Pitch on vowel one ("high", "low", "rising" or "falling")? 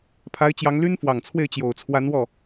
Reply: rising